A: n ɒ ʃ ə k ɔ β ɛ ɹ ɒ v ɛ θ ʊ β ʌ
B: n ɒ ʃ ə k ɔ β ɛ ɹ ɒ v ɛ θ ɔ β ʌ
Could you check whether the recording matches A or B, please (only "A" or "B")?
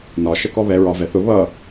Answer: A